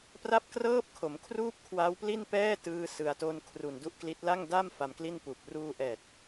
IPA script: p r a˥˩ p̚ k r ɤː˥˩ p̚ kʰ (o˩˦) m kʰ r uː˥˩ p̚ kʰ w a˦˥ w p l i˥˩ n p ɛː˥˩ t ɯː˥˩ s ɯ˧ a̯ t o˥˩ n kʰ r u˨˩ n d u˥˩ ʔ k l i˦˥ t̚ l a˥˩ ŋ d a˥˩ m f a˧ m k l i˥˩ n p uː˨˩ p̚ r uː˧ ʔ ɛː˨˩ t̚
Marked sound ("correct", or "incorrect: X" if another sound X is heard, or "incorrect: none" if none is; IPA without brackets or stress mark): correct